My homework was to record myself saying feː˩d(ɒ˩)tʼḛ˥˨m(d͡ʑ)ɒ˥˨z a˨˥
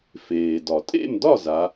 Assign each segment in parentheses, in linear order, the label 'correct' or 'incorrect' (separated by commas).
correct, incorrect